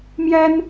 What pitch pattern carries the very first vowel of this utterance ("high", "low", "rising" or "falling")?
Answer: high